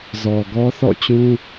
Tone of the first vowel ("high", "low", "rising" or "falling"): low